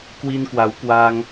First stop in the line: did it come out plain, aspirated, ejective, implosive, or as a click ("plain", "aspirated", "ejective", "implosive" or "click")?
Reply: plain